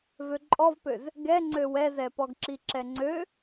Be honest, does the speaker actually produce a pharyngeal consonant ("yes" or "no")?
no